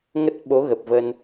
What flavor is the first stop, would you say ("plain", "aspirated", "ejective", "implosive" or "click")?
plain